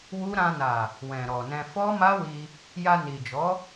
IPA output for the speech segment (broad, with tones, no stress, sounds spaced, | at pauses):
w u˦ ɾ ã˧ n a˨ | w ɛ̃˨ ɾ ɔ˨ n ɛ̃˧ f ɔ˦ m a˦ w i˧ | j a˧ n i˨ d͡ʒ ɔ˨˦